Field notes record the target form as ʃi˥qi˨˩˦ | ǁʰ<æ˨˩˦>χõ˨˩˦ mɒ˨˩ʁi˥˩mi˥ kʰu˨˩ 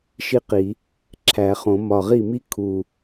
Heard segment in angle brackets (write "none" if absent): æ˨˩˦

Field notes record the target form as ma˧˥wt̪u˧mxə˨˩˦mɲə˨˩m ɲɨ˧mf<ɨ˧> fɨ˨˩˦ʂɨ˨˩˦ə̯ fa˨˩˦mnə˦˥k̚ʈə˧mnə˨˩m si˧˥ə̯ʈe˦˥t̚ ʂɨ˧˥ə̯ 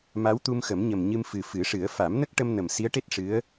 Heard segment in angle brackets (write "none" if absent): ɨ˨˩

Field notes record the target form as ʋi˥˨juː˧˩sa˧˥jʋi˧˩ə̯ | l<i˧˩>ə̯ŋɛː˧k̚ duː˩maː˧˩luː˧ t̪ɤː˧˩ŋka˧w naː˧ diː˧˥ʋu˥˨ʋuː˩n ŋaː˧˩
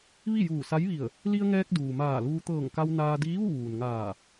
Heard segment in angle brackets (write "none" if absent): i˧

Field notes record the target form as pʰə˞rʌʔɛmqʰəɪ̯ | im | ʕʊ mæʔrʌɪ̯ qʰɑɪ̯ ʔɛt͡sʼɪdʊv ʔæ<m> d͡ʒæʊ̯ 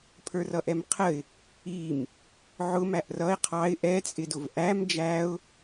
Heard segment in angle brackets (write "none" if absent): m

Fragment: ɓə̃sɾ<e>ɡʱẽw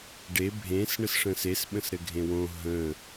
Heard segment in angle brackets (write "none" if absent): ɘ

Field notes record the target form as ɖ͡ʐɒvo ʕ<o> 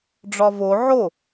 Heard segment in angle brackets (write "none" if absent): o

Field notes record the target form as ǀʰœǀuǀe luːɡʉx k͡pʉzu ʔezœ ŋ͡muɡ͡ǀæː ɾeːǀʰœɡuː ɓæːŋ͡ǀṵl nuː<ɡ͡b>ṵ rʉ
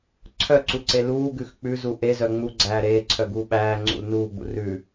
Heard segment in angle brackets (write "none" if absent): ɡ͡b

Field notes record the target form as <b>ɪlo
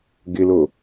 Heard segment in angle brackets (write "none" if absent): ɡ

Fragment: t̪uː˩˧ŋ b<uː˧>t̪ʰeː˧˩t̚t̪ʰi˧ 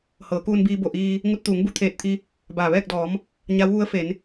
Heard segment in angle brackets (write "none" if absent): u˧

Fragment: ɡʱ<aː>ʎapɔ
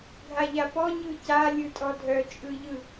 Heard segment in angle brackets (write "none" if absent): a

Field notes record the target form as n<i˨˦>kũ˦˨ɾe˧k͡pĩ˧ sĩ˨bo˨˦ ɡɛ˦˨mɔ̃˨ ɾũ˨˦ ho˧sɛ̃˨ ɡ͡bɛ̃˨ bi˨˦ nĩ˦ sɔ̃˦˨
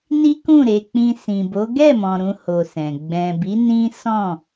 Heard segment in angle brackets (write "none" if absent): i˦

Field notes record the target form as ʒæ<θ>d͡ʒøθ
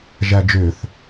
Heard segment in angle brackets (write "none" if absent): none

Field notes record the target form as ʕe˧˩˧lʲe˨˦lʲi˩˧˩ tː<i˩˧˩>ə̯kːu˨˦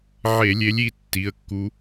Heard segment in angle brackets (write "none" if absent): i˩˧˩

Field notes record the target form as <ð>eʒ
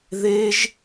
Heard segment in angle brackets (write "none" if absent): ð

